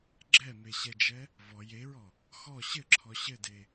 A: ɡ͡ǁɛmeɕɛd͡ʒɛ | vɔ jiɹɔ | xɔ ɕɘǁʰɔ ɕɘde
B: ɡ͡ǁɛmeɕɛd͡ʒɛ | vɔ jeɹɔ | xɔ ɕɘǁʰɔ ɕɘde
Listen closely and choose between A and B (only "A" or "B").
B